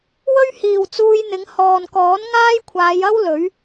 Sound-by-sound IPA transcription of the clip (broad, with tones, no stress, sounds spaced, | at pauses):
w ɵ˥ ɥ h iː˨ w t͡s uː˧ j n̪ ɪ˨˧ ŋ h ɔː˨ n k ɔː˨˥ n ŋ aː˥ j kʷʰ aː˨˧ j ɐ˥ w l ɵ˨˥ ɥ